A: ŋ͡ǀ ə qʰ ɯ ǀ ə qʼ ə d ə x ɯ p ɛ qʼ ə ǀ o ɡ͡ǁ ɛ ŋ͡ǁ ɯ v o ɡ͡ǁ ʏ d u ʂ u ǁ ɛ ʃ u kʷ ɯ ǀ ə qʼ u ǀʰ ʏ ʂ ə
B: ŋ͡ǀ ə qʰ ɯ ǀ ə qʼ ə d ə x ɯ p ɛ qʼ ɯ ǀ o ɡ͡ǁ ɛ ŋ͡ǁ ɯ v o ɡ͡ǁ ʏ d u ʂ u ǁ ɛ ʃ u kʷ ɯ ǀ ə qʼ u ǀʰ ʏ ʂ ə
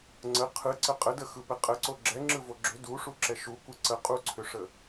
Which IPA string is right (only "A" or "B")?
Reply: A